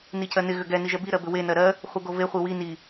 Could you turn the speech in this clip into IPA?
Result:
n i c ɜ n ɪ ɣ ʏ ɡ ɛ n i ʒ ɛ b i ɾ ɜ b ʏ w e n ɜ ɾ ɜ | χʷ ɪ ɡ o v e χʷ i w i n i

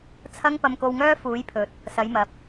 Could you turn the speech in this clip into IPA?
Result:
t͡sʰ ɐ˥ ŋ p ɐ˧ m k o˧ w ŋ œː˥ f uː˨˧ j pʰ ɵ˨ t̚ | s ɐ˨˧ j m ɐ˨˥ p̚

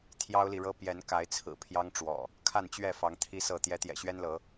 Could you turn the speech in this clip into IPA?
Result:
t̪ʰ j ɑ˦ ʊ̯ l i˨ ɻ ɤ˦ p j ɛ˨˦ n k a˨˦ ɪ̯ t͡sʰ ɹ̩˨˩ pʰ j ɑ˦ ŋ ʈ͡ʂ w ɔ̰˨˩ | kʰ a˥˨ n t͡ɕ ɥ ɛ˥˨ f ɑ˨˦ ŋ t̪ʰ i˦ s ɤ˥˨ t̪ j ɛ˨˦ t̪ j ɛ̰˨˩ ɕ ɥ ɛ˦ n l ɤ˨˦

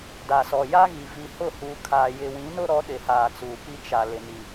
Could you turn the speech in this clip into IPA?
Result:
d a˨ s ɔ˨ j a˦ ɣ i˨ v i˨ h ʊ˦˨ h uː˨ kʰ aː˨ j ɪ˨ w ĩ˨˦ n ʊ˦ ɾ ɔ˨˦ ɗ ɪ˨ h aː˨ t͡s uː˨ p i˦ t͡ʃ a˨ l ɪ˨ n i˨

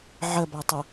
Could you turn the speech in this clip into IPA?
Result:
ʕ ə b a tˤ ʌ

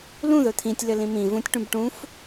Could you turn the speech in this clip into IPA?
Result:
l ũ ð ɵ t̪ʰ ĩ tʲ l ɘ l ĩ m ĩ v ũ tʲ ʈ ũ b ʈ ũ f

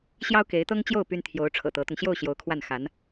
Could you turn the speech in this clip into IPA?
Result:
ɕ j ɑ˥ ʊ̯ k e˧˥ ɪ̯ t̪ ɤ˥ ŋ t͡ɕ j o˥˩ ʊ̯ p y˥ n t̪ʰ j o˧˥ ʊ̯ ʈ͡ʂʰ ɤ̰˨˩ t̪ ɤ˧˥ t̪ ʊ˧ ŋ ɕ j o˥˩ ʊ̯ ɕ j o˧˥ ʊ̯ kʰ w a˥˩ n x a˧˥ n

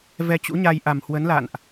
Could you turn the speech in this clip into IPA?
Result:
v ɛ˧ t͡ɕ ṵ˧˥ ɲ a˧ j ʔ a˨˩ m h w ə˨˦ n l a̰˧˨ n ʔ

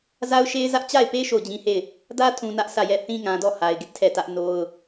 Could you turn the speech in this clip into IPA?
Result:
z a˦ ʊ̯ ʃ e˦ ɪ̯ z ä˦ ʔ t͡ɕ a˦˨ ɪ̯ p e˦ ʃ o˦˨ ʊ̯ d͡ʑ ĩ˦ h e˦˨ ɪ̯ | d ä˦ tʰ ũ˨ n ä˦ ʔ sʰ ä˦˨ j ɛ˦˨ θ ĩ˦ ŋ ã˨ d ɔ˦˨ h a˨ ɪ̯ ɡ ɪ˦ ʔ tʰ ɛ˦˨ t ä˦ ʔ n o˦ ʊ̯

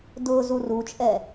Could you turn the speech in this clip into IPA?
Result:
d ʊ z u r u t͡ʃʼ ɛ

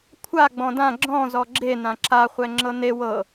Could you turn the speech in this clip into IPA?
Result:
kʷʰ a ɡ͡b ɔ̃ d ã ɡ͡ǁ ɔ̃ z ɔ ɡ͡ǁ e n ã ǁ a χʷ ɛ ŋ͡ǁ ɤ n e w ɤ

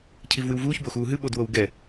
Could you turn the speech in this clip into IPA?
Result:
cʰ i v w ɨ w v uː ç b o x uː ɦ ɨ ɓ o d w o w ɡ ɛ

